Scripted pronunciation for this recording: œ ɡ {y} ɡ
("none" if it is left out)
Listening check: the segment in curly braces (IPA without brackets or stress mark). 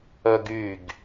y